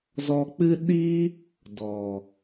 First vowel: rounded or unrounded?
rounded